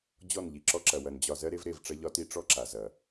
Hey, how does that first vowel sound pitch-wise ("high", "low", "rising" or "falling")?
falling